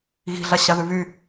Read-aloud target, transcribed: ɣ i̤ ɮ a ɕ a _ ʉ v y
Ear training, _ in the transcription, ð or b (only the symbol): ð